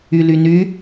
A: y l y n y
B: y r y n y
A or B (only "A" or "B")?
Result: A